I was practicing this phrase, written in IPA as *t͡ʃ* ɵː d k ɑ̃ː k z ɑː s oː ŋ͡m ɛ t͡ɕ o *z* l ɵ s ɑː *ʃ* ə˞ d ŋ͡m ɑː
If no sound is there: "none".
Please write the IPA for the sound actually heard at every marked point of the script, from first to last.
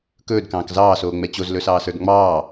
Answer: k, z, s

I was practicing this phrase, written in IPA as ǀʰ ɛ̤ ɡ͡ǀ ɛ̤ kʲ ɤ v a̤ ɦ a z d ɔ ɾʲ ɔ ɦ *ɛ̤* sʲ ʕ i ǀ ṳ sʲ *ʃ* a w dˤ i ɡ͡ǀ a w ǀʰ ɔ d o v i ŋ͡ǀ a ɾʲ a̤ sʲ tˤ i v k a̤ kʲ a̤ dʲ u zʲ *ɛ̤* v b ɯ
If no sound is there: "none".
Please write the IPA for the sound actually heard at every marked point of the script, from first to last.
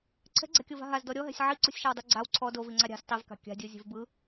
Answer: ɛ̤, ʃ, e̤

